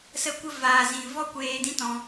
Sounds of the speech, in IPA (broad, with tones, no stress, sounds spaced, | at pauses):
s ə˦ kʷ ə˦ v aː˨ z ĩ˨ v ɔ˦ kʷ eː˧ d ĩ˦ t ɔ̃˧